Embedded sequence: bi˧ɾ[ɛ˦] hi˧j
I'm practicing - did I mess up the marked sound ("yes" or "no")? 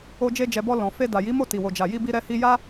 yes